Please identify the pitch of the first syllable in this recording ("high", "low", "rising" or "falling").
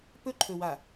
high